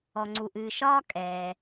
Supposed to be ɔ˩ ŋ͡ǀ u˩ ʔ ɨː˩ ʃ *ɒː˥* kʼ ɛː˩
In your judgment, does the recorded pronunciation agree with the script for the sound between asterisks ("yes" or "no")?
yes